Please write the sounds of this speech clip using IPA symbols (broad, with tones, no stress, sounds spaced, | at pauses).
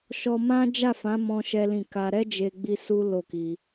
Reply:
ʃ ɔ˧ m ã˦ d͡ʒ a˦˨ f ã˨˦ m ɔ̃˦ ʃ ɛ˦ l ĩ˦˨ k a˧ ɾ ɛ˦ d͡ʒ e˧ ɡ͡b i˧ s u˦ l o˦˨ k i˧